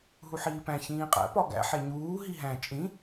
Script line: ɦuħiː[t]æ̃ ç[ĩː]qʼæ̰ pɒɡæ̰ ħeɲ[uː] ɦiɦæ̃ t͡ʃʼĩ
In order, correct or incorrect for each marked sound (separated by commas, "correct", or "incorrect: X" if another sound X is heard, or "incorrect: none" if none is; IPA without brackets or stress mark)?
incorrect: p, correct, correct